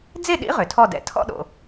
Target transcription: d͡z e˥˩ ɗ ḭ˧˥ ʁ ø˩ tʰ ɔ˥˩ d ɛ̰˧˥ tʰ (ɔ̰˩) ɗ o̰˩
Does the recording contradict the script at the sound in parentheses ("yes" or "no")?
yes